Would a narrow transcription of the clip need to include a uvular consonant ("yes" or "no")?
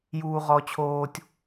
yes